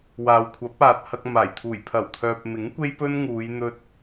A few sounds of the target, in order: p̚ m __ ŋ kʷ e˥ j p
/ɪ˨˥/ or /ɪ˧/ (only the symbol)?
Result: ɪ˨˥